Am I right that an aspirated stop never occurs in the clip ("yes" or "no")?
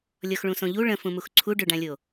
no